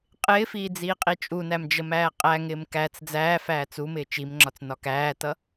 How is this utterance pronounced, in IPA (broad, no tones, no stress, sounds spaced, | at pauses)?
qʼ ɪː f iː d͡z iː qʼ i t͡ʃʼ u n æ m d͡ʒ ə m æː qʼ æ ŋ ɪː m k æ t͡s d͡z æː f æː t͡s u m ɪː t͡ʃ i m ŋ͡ǁ ɒ t͡s n ɒ k æː t ʌ